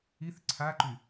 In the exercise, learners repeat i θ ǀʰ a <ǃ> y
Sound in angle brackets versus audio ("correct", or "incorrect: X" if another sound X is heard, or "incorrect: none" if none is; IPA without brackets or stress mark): correct